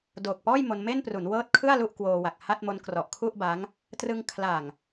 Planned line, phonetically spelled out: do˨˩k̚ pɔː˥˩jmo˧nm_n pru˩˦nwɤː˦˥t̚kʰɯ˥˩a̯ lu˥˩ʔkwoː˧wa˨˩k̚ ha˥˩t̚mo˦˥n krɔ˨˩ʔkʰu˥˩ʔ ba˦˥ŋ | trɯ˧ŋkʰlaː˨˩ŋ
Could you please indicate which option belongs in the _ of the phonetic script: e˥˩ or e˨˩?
e˥˩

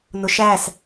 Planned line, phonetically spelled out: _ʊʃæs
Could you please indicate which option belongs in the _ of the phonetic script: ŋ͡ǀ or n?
n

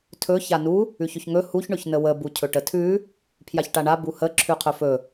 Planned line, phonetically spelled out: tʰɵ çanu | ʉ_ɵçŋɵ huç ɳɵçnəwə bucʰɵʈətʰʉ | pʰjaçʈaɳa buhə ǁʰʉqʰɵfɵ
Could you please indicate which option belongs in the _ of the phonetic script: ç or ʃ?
ç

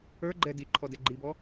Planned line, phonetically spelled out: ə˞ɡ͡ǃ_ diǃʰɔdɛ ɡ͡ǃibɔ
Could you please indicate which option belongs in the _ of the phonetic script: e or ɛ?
ɛ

